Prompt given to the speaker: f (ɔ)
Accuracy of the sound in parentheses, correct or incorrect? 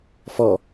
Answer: correct